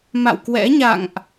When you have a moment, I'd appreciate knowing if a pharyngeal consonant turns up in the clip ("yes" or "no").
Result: no